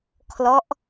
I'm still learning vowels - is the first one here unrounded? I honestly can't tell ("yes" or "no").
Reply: no